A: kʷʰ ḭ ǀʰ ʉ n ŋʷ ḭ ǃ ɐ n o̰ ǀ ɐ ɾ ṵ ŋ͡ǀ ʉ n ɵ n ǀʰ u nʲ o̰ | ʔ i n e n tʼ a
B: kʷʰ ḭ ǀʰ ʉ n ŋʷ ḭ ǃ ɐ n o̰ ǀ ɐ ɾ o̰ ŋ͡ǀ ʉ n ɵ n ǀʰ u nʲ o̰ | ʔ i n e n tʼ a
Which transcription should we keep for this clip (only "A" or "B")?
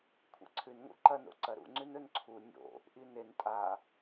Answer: A